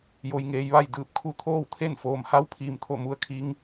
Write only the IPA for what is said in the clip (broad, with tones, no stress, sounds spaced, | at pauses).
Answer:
j o˧ j ŋ eː˧ j ʋ a˥˨ j d ɯː˧˩ p̚ kʰ u˧ t̪ʰ oː˥˨ w t̪ʰ e˥˨ n f oː˩ m h a˧˥ w pʰ iː˩ m t̪ʰ o˧˩ m u˧ ə̯ kʰ i˧˥ ŋ